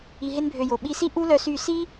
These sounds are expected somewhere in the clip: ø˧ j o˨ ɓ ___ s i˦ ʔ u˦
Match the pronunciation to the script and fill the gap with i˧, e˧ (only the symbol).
i˧